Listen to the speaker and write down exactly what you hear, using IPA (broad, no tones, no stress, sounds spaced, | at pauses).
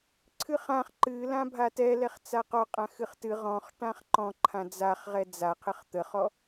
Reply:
ǀʰ ɨ χ ã χ ǃ ɨ l ã bʱ a t ɛ l ɛ χ t͡s a q ɔ qʼ ã x ɨ χ t ɨ ʁ ɔ̃ χ ʈ ã χ ǃ ɔ̃ ǃʰ ã d͡z a χ ʁ ɛ d͡z a qʰ ə χ t̪ ə χ ɔ